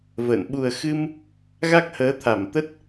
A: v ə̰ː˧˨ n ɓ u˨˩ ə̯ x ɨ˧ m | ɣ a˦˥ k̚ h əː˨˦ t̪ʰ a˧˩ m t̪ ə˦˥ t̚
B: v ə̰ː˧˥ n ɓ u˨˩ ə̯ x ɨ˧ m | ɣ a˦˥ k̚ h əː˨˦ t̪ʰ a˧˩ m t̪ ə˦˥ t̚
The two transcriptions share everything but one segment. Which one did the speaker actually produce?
A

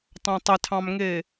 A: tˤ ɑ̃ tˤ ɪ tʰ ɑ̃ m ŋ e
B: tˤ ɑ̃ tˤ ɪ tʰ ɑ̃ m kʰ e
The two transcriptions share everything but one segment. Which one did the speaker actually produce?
A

